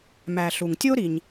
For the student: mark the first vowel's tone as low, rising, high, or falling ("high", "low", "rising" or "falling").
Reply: low